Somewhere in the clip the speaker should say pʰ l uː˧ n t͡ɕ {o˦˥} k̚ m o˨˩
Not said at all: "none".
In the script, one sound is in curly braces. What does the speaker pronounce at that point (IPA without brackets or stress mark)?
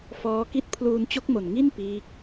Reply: o˦˥